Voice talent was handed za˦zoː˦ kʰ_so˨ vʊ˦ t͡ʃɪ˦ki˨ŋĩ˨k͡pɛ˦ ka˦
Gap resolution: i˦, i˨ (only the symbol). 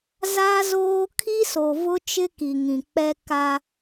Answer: i˦